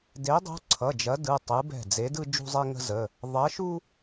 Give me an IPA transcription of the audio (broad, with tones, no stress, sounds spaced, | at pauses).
d e˨˦ dˤ ṳ˨˦ ǀʰ ʌ˩˧˩ d͡ʒ ɐ˨˦ d ɯ˩˧˩ tˤ ɯ˨˦ b ɛ̤˧˩ d͡z e˨˦ d ɯ˦ d͡ʒ ṳ˦ zˤ e˦ ŋ ə̤˦ z ə˩˧˩ | ðˤ ɐ˨˦ ʃ u˦